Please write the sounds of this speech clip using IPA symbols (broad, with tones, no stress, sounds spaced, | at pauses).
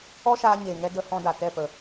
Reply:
ɔ˦ ʃ aː˧ ɲ eː˨ ŋ ɛ˧ d ə˧ h ɔ̃˧ d a˨ t ɛ˦˨ p ə˨